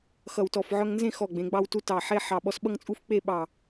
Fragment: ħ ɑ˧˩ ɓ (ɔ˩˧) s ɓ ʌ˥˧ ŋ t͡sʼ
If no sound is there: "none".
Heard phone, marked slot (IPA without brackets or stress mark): ɔ˧